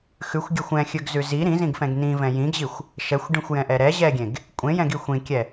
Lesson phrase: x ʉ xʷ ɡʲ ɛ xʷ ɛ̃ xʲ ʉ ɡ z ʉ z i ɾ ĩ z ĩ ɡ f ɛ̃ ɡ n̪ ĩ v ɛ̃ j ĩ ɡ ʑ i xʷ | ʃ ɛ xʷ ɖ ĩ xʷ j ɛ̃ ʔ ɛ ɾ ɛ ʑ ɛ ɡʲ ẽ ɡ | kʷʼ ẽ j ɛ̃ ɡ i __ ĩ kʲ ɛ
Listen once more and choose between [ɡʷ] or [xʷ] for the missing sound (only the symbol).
xʷ